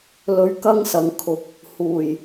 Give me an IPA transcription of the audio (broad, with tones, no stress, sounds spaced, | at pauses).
l ɵ˨ ɥ k ɐ˥ ŋ s ɐ˨ ŋ kʰ ʊ˨ k̚ | h uː˨˩ j